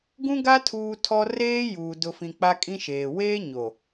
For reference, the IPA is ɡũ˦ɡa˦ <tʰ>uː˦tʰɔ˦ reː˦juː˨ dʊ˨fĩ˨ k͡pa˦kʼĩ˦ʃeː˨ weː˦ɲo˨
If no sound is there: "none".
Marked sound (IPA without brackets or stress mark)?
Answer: tʰ